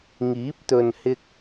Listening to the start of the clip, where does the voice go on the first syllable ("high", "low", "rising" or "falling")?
rising